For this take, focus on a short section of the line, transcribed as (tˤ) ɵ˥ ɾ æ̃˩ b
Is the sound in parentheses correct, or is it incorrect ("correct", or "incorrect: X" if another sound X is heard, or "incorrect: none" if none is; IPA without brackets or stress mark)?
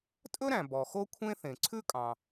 incorrect: tʼ